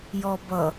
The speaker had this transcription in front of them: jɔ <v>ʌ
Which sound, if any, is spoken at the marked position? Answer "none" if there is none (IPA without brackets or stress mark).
b